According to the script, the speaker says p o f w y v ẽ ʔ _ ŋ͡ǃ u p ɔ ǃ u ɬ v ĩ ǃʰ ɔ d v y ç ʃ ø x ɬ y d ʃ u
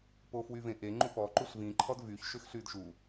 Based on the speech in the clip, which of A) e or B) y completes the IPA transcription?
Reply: A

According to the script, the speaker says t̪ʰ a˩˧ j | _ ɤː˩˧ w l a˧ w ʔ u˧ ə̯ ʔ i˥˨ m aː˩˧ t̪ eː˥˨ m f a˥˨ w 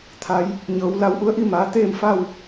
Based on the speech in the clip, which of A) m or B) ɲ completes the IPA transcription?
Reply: B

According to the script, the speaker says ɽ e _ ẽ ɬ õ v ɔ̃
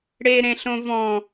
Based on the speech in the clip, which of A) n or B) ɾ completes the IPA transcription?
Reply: B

